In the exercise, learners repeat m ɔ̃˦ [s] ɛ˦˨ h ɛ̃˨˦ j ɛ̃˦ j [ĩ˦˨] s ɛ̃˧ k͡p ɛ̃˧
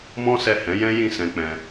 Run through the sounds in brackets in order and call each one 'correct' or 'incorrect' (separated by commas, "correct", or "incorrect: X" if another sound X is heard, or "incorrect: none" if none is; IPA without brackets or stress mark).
correct, correct